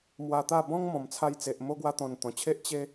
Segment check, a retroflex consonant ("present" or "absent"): absent